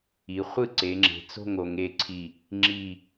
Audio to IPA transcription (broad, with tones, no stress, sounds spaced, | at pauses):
i˩˧ χʷ ɯ˥˩ ǀ e˩˧ ŋ͡ǁ e̤˩˧ t͡s o̤˥˩ ŋ o˩˧ ŋ e˥˩ ǀʰ i˧˩ | ŋ͡ǁ i˧˩